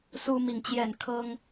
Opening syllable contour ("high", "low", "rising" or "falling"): high